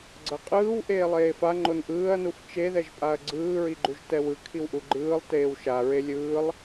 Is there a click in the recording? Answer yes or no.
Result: yes